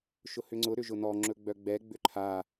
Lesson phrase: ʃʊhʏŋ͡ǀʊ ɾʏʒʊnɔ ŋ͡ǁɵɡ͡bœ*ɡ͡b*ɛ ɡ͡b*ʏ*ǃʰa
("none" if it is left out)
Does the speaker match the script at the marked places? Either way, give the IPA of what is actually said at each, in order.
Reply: ɡ͡b, ʏ

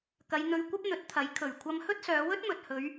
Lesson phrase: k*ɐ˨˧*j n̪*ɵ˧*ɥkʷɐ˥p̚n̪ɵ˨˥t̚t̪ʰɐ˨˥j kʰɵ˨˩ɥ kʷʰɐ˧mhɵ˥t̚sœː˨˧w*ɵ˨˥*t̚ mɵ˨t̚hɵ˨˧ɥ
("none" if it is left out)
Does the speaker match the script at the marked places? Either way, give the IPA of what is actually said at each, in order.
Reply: ɐ˨˧, ɵ˧, ɵ˥

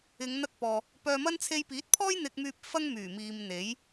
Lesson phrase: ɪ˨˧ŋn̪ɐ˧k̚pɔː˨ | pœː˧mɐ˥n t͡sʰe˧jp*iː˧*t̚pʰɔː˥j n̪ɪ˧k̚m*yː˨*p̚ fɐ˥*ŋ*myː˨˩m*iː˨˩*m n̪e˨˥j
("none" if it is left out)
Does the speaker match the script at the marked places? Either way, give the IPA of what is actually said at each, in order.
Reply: iː˨˥, yː˧, ŋ, iː˨

